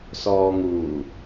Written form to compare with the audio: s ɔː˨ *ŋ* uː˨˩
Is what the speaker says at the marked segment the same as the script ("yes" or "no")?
yes